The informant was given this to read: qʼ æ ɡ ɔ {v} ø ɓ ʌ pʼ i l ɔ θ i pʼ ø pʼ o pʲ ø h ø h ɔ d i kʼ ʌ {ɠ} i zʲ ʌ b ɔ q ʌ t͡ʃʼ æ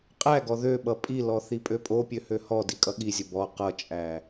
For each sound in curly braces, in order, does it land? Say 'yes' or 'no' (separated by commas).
no, yes